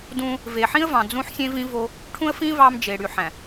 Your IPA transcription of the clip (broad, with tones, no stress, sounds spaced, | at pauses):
d ũ˦ | v e˨ ħ ĩ˦ ə̯ v ɑ̃˨ d͡z ũ˦ ħ sʲ ẽ˦ v ĩ˦ v o˦ | ʈʰ ũ˦ ə̯ f ĩ˦ v ɑ˦ m d͡ʒ e˨ ɽ y˨ ħ æ̃˨